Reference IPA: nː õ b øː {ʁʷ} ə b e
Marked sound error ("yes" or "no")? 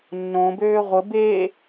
no